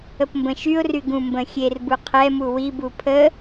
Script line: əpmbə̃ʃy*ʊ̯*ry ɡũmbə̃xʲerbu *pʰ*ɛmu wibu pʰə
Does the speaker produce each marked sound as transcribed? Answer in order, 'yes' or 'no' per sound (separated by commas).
yes, no